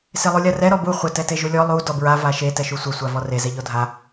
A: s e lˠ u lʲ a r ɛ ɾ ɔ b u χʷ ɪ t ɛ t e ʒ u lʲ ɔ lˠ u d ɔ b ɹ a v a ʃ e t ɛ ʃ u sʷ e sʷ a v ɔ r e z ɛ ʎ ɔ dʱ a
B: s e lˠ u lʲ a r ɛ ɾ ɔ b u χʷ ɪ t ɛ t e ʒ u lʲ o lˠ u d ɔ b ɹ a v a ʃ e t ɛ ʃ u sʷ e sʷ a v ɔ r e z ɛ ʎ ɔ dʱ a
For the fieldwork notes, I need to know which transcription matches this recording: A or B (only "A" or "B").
A